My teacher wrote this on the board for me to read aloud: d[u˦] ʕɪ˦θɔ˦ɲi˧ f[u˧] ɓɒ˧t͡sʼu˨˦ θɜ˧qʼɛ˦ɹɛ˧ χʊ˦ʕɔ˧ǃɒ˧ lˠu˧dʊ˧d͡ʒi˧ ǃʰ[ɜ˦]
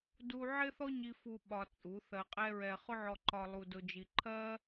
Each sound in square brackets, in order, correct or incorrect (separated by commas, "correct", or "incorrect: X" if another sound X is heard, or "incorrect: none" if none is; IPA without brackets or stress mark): correct, correct, correct